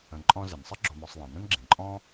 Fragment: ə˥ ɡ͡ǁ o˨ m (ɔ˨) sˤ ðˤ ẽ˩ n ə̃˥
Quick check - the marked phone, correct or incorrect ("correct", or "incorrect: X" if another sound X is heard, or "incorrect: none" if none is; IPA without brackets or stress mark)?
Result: correct